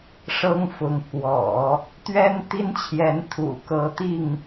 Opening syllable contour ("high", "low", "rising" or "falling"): high